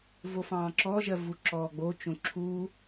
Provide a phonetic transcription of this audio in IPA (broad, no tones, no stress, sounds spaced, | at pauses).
v o f ɑ̃ː ǁ ɔ ʒ ɜ v u ǁ ɔː ɡ͡b o t͡ʃ õ ǁʰ uː